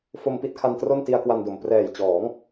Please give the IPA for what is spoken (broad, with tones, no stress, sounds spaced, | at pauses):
f o˧ m p i˥˩ t̚ kʰ a˧ n t r o˥˩ n t i˧ a̯ k w a˧ n d o˨˩ m p r ɛː˨˩ j t͡ɕ ɔː˩˦ ŋ